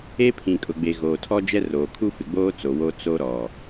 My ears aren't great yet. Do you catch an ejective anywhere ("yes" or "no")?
yes